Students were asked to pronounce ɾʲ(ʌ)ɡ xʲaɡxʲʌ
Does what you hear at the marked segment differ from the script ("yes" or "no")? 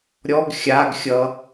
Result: yes